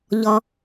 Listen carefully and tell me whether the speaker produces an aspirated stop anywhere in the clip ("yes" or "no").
no